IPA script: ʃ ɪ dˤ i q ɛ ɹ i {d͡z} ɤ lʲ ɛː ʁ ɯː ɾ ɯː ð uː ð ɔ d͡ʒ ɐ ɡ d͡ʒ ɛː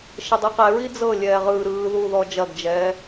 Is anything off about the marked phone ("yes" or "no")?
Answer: no